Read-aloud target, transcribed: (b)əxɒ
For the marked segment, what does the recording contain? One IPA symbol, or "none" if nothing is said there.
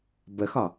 b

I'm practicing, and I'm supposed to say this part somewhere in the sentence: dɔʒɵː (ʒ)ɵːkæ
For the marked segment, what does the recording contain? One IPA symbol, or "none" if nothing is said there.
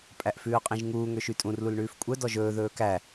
ð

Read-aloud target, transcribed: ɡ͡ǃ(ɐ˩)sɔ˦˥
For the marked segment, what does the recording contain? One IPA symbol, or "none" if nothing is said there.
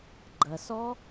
ɐ˩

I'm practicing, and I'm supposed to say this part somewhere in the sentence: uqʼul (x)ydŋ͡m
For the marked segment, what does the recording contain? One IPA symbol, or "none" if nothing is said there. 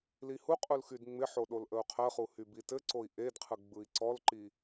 x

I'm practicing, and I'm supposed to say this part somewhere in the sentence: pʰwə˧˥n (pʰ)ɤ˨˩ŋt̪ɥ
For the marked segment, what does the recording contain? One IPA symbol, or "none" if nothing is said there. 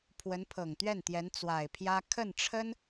pʰ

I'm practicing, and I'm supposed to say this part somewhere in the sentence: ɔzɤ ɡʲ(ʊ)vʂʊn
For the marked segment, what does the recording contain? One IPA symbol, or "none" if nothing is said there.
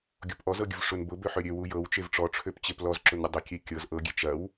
ʊ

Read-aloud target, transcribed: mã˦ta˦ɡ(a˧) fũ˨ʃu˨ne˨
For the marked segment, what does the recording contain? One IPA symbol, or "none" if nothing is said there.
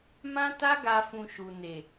a˧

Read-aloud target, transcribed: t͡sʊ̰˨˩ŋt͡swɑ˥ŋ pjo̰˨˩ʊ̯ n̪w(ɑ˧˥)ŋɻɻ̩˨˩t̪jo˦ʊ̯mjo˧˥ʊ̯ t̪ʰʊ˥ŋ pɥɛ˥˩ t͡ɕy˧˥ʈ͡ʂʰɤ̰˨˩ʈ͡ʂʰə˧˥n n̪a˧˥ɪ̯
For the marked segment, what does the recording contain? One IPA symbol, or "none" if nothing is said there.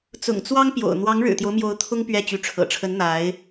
ɑ˧˥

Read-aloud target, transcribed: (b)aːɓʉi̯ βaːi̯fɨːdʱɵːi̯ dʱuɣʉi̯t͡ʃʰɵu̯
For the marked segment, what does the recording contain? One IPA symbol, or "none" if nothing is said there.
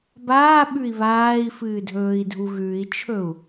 b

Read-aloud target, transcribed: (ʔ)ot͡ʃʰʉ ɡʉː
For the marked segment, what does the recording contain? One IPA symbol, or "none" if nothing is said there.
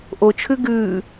ʔ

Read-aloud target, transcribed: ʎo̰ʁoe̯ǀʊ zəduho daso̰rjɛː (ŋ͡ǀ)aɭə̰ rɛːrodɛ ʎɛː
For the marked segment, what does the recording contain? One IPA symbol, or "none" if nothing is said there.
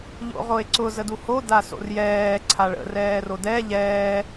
ǀʰ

